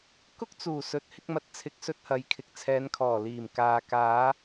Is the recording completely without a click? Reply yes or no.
yes